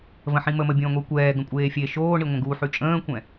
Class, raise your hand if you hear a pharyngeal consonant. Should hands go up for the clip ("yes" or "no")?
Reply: yes